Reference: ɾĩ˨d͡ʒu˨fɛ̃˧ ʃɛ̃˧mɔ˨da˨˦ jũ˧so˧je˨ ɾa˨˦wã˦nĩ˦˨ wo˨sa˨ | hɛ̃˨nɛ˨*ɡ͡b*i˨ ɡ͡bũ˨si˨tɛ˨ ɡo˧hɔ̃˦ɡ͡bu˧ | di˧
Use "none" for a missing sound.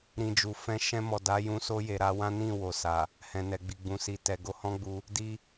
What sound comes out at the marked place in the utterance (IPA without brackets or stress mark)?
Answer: ɡ͡b